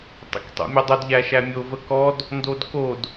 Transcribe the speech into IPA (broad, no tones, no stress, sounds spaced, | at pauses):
tˤ ə̰ k tˤ o̰ mʲ ɔ dˤ o d ʎ æ ʃ æ mʲ o v ə k ɔ d | n d o d k o d